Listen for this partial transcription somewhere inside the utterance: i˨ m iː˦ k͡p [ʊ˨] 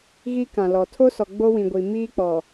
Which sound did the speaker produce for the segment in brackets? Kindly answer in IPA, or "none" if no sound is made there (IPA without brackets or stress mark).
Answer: ɔ˨